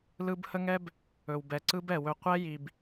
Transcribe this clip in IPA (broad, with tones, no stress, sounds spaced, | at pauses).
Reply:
l ɯ˦ b h ə˦ ŋ ɛ˦ b | ɵ˨ w b ɛ˨ ǀ ɯ˦ b ɛ˨ w ɵ˧ qʷ ɛ˦ j i˨ b